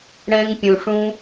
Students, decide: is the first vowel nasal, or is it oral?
nasal